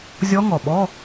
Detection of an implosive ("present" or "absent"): present